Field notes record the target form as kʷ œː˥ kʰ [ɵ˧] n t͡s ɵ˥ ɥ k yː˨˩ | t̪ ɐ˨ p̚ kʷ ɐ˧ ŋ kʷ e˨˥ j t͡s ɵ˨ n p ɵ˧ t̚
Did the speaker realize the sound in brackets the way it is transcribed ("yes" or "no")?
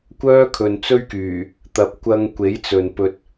no